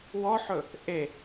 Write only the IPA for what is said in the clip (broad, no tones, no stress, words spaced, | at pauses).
wɔħɵ | ʔe